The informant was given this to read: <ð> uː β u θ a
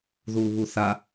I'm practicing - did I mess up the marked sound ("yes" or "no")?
no